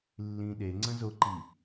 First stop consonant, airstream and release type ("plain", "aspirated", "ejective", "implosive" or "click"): implosive